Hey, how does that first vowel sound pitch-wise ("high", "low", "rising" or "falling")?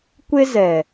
high